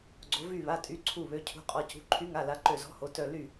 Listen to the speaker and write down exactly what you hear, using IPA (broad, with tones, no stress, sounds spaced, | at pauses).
ɡ͡ǀ o˩˧ v y˧˩ β a˩˧˩ tʼ y˩˧˩ ǀʰ u˧˩ β ø˩˧˩ cʰ ṳ˩˧˩ qʼ ɔ˩˧˩ c ṳ˩˧˩ ǃʰ y˨˥ ŋ a˩˧˩ l a˨˥ ǃ ø˧˩ z ɔ̤˨˥ h o˩˧ t œ˧˩ l y˧˩